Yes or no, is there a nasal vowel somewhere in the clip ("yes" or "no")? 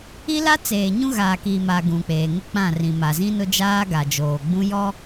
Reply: yes